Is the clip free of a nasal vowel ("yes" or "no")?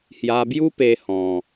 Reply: no